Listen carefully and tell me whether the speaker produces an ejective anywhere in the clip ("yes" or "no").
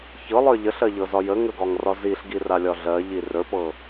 no